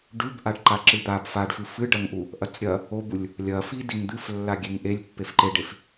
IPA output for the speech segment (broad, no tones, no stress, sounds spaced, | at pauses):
ɖ ʉ b ʔ a ɖ ǃ a ǁ ɨ d̪ a b f a ɖ f ɨ f ɨ ɖ ɐ ŋ ʔ u | ʔ ɐ t͡s ɾʲ ɐ | o b u lʲ | lʲ ɐ f i d i ŋ d̪ ɨ f lː a ɡʲ e ŋ ʔ e lʲ pː e f ǃ e ɖ e f